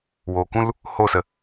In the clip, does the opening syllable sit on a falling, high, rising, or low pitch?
low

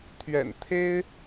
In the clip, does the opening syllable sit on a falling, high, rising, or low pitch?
low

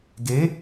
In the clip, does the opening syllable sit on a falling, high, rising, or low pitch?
rising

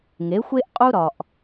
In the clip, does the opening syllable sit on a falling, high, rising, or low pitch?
rising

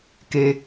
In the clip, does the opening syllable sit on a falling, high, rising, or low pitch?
low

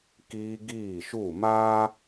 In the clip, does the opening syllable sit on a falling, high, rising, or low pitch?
high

